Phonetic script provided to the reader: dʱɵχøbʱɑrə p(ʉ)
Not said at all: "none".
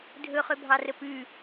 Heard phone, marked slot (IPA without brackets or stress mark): ʉ